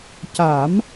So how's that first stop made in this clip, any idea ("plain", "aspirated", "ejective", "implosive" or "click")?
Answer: plain